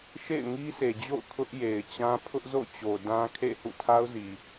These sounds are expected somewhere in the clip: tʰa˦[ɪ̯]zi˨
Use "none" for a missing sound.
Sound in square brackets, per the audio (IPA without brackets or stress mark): ʊ̯